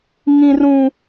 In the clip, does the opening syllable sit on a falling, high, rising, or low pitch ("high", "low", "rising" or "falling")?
high